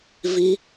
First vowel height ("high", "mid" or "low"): high